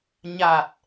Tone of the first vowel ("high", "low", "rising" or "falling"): low